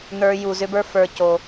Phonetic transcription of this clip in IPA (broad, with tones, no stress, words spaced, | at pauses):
n̪ə˞˨ju˩ zʏ˥bə˞˥ fə˞˨co˩